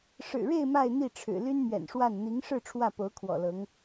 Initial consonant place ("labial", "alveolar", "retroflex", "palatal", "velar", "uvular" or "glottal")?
retroflex